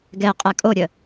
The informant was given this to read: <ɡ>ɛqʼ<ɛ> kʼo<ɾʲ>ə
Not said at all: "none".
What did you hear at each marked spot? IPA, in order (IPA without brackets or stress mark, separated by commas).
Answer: ɡ, ɛ, ɾʲ